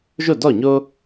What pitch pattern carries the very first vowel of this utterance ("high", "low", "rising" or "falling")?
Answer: falling